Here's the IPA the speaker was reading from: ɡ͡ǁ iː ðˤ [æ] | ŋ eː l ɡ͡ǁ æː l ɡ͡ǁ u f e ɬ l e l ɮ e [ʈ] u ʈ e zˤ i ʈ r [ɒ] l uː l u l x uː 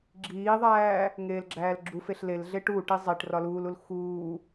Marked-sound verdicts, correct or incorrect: incorrect: æː, correct, correct

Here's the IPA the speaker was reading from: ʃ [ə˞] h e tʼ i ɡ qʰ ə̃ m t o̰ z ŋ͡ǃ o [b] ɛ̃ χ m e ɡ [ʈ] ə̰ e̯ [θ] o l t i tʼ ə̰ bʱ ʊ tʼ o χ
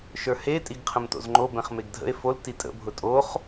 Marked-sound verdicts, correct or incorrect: correct, correct, incorrect: dʱ, incorrect: f

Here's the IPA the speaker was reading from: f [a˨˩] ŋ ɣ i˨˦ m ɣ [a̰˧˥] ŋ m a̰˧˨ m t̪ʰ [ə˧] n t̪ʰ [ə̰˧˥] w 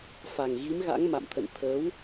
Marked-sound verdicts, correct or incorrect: correct, correct, incorrect: ə̰˧˨, incorrect: ə˨˦

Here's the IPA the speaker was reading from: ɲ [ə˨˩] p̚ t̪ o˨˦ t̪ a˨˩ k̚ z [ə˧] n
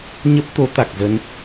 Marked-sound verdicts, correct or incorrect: incorrect: ə˦˥, correct

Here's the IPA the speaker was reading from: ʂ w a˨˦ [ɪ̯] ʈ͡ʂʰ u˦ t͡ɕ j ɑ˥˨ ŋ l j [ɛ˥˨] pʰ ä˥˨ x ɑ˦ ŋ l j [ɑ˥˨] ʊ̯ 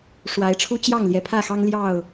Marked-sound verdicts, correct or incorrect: correct, incorrect: ɛ˨˩, correct

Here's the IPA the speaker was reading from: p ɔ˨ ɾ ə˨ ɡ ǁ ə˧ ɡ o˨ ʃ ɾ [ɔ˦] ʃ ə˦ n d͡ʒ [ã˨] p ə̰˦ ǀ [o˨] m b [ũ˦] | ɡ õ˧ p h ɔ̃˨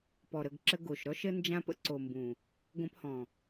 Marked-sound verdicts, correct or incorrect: correct, incorrect: ã˦, correct, incorrect: ũ˨

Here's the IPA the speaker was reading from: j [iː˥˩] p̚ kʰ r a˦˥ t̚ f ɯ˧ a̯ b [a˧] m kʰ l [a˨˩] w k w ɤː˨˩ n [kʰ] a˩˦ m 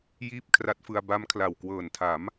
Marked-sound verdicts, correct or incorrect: correct, incorrect: a˦˥, correct, incorrect: tʰ

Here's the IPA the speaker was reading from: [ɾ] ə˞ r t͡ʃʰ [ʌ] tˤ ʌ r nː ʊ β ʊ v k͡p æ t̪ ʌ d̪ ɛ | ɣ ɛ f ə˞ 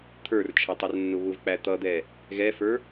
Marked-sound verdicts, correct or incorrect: incorrect: t̪ʰ, correct

